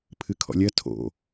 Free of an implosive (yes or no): yes